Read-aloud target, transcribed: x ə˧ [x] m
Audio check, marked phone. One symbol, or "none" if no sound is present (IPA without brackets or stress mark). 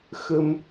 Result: none